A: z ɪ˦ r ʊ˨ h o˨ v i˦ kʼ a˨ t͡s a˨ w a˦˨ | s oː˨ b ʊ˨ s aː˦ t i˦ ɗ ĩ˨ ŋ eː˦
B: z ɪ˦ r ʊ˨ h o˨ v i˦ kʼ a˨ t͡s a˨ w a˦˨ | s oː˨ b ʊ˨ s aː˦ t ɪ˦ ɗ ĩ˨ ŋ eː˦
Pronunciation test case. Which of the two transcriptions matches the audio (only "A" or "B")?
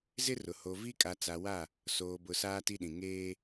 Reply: A